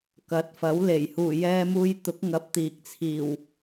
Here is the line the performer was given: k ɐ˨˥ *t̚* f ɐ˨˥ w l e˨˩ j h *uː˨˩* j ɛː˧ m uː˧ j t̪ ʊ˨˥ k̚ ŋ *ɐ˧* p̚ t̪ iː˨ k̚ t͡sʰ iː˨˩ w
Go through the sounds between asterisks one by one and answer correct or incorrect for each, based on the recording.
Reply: correct, correct, correct

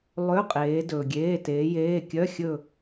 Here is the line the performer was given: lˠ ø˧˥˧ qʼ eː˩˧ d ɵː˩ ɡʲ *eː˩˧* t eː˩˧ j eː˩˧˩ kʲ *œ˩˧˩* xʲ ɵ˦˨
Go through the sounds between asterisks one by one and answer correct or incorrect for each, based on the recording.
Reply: incorrect: eː˩˧˩, incorrect: œ˧˥˧

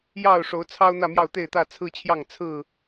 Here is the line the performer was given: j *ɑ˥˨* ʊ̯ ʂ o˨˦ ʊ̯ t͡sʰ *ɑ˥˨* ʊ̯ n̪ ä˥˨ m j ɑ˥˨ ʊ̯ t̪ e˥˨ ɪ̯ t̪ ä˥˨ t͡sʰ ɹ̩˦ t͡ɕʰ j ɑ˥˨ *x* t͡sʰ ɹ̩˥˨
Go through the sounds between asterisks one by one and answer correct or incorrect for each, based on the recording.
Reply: correct, incorrect: ɑ˦, incorrect: ŋ

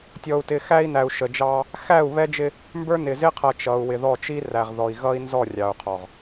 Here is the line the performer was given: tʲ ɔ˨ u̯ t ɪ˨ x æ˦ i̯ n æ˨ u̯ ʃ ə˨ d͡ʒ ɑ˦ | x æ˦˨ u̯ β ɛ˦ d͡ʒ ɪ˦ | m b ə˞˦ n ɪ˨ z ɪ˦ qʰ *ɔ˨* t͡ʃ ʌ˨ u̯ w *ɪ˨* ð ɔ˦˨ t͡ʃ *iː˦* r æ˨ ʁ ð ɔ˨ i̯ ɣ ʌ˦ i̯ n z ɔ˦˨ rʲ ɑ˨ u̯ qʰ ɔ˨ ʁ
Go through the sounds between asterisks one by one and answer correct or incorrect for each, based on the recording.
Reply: incorrect: ʌ˨, correct, incorrect: i˦

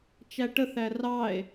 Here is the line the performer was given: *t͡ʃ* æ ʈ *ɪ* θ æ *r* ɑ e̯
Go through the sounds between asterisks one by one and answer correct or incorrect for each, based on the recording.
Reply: correct, incorrect: ə, correct

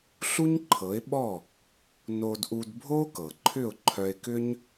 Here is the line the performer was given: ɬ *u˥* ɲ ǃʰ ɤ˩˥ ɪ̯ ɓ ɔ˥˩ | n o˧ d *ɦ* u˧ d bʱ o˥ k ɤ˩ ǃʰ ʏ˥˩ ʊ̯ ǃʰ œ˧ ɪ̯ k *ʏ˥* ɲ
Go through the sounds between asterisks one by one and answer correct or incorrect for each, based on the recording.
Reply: correct, incorrect: ʔ, correct

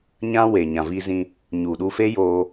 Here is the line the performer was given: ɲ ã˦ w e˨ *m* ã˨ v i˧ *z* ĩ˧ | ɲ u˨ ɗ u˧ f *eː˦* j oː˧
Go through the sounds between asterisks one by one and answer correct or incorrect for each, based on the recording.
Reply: incorrect: ɲ, correct, incorrect: e˦

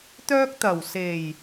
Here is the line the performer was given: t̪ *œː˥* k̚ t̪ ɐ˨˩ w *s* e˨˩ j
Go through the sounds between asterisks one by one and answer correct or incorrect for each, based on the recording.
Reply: correct, correct

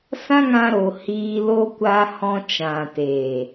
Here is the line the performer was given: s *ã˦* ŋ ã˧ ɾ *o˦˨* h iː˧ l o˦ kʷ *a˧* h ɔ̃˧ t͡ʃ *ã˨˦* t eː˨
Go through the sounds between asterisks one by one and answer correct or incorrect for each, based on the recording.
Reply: correct, incorrect: o˨, correct, incorrect: ã˨

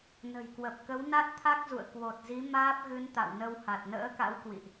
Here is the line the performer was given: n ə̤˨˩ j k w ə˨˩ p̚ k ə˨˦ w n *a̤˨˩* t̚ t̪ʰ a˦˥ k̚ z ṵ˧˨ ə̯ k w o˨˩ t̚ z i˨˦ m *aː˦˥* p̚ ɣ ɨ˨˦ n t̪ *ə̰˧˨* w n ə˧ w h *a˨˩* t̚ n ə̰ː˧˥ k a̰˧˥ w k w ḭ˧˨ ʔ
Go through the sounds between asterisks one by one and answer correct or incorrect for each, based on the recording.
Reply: incorrect: a˦˥, correct, incorrect: a̰˧˨, correct

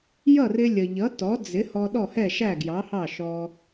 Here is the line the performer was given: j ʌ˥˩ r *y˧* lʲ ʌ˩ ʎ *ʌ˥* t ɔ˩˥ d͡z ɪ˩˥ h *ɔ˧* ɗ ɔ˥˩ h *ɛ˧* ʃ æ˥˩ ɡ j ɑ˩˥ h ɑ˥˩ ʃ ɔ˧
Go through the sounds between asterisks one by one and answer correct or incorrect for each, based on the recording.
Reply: incorrect: ɪ˧, incorrect: ʌ˩˥, correct, incorrect: ɛ˥˩

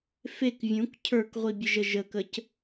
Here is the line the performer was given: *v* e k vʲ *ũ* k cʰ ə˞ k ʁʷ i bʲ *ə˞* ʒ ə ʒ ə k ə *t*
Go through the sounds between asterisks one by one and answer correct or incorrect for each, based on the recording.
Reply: incorrect: f, correct, incorrect: ə, incorrect: c

